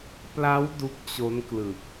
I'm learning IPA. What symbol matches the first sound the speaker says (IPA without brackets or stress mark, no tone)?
p